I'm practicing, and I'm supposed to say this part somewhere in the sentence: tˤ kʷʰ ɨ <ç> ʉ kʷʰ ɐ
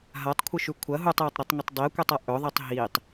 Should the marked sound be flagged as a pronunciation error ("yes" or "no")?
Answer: yes